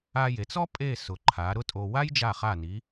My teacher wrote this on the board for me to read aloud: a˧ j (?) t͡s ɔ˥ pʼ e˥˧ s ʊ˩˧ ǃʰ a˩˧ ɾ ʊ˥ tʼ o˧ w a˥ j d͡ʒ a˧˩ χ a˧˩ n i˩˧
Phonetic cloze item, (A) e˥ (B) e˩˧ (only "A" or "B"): B